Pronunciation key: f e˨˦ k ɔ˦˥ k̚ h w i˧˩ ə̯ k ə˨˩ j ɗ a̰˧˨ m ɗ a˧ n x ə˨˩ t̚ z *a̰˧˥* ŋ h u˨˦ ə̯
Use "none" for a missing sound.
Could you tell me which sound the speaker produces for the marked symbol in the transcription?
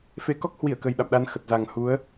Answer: a˨˩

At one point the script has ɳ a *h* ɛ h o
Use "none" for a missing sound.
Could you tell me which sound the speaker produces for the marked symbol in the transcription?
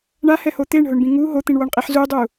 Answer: h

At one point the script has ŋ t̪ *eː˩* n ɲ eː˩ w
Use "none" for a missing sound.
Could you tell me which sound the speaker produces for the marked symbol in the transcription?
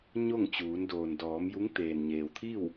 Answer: eː˩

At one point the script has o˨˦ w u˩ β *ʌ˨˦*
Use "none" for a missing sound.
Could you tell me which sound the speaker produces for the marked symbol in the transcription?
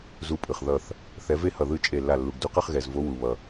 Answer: ʌ˩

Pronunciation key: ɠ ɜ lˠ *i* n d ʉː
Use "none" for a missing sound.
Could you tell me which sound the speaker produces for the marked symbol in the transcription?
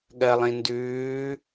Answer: ĩ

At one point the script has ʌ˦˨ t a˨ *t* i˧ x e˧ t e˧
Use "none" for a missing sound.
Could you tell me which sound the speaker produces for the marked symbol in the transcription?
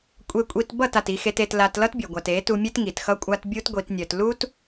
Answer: t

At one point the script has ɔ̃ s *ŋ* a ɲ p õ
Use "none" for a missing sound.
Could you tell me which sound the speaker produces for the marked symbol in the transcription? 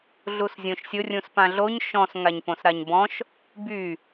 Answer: ŋ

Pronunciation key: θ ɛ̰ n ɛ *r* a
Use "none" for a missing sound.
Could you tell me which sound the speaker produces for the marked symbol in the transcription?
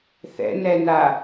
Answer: n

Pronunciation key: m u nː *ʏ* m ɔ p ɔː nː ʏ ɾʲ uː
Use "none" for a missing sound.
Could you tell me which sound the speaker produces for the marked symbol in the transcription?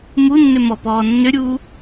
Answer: ʏ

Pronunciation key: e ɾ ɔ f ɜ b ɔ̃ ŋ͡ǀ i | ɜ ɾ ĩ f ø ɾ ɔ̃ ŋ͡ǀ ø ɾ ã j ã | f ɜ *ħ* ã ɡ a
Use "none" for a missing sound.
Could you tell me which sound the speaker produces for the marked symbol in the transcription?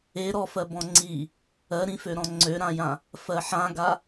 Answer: ħ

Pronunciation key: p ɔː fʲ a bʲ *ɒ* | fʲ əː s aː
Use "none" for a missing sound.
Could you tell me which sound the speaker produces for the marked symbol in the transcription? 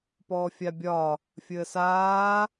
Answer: ɒ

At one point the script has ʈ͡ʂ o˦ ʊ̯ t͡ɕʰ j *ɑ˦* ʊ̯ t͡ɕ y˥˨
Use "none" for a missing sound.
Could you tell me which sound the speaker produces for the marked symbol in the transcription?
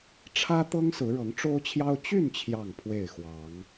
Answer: ɑ˦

